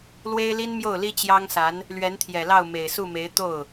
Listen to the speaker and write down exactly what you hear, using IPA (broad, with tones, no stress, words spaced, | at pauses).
lwe˥ɪ̯li˥nmjo˥˩ʊ̯li˥ t͡ɕjɑ˥ŋsa˧˥n | lɥɛ˧˥nt̪ʰjɛ˨˩lɑ˥˩ʊ̯ me˨˩ɪ̯su˥˩me˧˥ɪ̯ t̪o˥˩ʊ̯